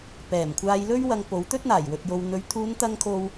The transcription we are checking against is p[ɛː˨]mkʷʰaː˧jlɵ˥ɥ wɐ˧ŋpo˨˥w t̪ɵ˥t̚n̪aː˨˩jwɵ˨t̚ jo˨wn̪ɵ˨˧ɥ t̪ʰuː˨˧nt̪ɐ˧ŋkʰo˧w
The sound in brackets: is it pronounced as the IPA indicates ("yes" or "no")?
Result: no